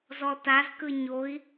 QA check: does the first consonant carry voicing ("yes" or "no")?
yes